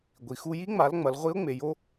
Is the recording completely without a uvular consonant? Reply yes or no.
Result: no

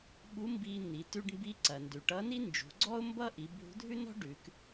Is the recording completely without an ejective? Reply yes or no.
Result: yes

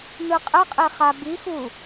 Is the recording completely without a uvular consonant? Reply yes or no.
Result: no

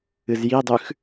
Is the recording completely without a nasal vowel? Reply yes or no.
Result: yes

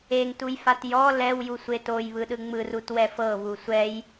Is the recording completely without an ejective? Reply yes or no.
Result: yes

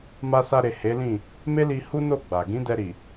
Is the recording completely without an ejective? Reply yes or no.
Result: yes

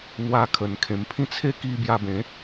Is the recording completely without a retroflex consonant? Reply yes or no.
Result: yes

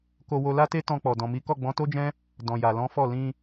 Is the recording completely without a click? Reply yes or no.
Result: yes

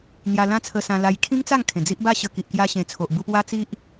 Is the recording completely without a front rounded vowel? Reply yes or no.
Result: yes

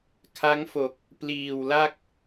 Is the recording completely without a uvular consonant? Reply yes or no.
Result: yes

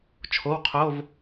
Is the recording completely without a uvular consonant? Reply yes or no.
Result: no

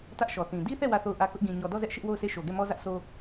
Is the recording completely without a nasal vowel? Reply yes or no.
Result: no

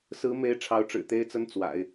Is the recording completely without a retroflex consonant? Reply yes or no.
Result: no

